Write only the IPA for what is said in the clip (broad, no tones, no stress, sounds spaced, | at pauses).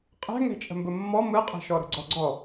qʼ ɛ̤ ŋ ɛ̤ t͡ʃʼ ə̤ m b ə mː ɔ m ɯ qʼ ɛ̤ ʃ ɔ ɾ ə̤ ɡ͡ǀ ɔ ɡ͡ǀ ɔ